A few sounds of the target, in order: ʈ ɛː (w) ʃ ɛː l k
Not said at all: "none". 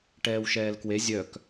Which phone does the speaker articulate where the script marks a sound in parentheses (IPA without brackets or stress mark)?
w